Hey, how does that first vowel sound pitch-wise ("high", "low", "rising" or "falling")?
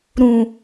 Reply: low